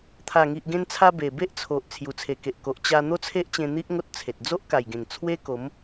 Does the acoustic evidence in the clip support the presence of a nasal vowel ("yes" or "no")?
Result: yes